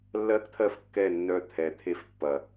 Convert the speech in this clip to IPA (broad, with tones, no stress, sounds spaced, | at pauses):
lː ɜ˦ k t̪ʰ ɜ˦ f kː ɛ˦˨ nː œ˧ t̪ʰ ɛ˨ t̪ʰ e˧ f pː ɐ˨